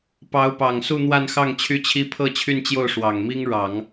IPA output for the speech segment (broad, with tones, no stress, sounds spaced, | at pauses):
p ɑ˧˥ ʊ̯ p ɑ˨˩ ŋ s u˥˧ n̪ w a˥˧ n x ɑ˥˩ ŋ t͡ɕʰ y˥ t͡ɕʰ i˥ pʰ ɤ˥˧ t͡ɕʰ y˥˧ n t͡ɕ j o˥˩ ʊ̯ ʂ w ɑ˨˩ ŋ m i˥ ŋ ɻ ɑ˨˩˦ ŋ